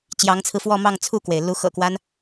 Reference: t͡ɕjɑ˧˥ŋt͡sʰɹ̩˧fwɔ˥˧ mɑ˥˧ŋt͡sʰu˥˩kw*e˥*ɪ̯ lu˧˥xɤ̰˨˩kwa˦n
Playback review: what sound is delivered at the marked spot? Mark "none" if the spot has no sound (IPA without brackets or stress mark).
e˩